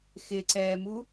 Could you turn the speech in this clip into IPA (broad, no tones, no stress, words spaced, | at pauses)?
xɪǀɛːmu